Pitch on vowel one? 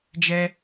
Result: high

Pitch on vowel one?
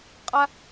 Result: high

